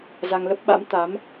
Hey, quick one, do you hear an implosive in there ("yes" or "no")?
yes